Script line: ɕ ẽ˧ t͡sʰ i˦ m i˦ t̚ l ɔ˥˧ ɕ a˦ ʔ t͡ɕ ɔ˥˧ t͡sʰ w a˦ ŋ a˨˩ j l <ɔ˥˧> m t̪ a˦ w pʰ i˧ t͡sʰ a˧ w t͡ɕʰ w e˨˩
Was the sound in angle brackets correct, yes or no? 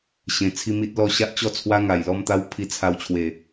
yes